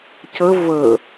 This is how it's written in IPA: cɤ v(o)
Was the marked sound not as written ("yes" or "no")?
yes